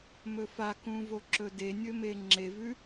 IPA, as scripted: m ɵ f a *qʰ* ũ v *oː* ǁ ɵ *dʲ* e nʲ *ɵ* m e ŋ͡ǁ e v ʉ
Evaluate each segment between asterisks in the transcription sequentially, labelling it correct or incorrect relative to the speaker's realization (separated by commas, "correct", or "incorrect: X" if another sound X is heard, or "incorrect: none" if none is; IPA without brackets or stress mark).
incorrect: k, incorrect: o, incorrect: d, correct